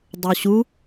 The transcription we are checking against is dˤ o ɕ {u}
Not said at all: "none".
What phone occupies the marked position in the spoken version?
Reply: u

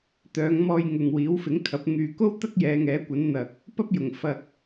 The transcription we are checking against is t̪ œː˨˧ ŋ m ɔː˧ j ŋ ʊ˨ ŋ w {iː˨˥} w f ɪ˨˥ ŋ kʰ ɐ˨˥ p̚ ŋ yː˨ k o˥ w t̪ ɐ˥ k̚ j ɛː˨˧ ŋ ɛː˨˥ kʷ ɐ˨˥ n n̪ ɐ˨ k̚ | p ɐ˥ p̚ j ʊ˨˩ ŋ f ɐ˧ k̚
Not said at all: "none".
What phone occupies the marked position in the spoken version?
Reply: iː˨˥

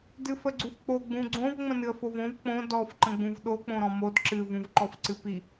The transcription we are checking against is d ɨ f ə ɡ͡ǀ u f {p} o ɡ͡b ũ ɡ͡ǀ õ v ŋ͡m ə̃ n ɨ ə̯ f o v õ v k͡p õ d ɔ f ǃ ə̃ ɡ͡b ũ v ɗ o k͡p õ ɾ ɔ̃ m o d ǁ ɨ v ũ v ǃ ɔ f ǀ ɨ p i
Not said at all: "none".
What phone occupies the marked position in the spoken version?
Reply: k͡p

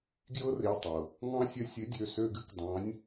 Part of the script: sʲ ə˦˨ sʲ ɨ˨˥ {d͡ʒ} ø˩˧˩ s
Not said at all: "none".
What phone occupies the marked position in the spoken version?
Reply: dʲ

